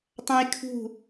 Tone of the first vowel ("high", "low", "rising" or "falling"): high